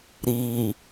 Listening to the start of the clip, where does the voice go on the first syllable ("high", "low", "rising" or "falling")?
low